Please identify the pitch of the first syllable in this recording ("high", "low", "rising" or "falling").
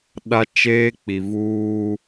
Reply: high